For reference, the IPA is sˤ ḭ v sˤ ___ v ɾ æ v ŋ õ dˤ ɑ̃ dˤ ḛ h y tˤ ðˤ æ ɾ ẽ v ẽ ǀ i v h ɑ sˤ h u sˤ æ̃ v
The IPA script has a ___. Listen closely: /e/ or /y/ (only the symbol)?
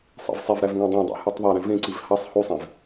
e